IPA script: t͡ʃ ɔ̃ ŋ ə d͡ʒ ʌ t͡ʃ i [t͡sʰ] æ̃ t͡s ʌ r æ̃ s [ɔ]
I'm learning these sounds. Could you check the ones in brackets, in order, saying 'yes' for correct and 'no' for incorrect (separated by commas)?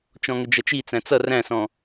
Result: no, no